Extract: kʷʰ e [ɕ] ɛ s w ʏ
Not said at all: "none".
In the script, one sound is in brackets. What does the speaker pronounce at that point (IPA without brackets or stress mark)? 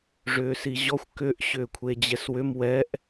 d͡ʑ